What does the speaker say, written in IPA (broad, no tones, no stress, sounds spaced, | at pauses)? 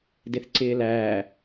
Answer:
d ɪ θ ǀ ɪː l æː